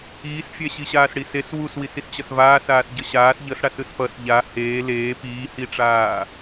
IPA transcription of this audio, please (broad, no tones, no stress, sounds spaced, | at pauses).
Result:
iː s fʲ ɛ ɕ i ɕ aː s ɽ i s e s w u s w i s i s t͡ɕ ʌ s v aː s aː s ɟ ʌ ɕ aː s ʎ ʌ s ɽ a s ɯ s p ʌ s ʎ a h eː l eː p iː h i ʈ͡ʂ aː